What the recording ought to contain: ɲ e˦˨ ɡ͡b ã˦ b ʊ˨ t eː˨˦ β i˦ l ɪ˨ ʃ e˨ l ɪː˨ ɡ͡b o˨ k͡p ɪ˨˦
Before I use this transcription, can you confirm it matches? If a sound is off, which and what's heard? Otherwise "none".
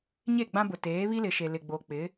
ɪː˨ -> ɪ˨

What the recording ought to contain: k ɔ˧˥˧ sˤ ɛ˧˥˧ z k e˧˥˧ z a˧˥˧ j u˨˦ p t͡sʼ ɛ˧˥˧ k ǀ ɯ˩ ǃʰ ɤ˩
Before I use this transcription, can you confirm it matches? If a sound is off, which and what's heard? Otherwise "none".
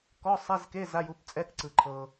none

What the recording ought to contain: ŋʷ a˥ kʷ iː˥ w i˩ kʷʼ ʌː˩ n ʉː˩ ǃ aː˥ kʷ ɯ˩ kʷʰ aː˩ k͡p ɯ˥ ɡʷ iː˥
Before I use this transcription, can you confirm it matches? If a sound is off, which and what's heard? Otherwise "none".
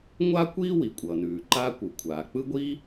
none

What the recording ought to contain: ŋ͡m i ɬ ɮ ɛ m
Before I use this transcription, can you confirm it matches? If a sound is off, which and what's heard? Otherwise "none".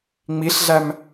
ɛ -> æ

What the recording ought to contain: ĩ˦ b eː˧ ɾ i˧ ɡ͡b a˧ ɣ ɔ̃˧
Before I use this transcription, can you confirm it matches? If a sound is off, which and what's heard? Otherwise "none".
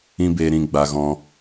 i˧ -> ĩ˧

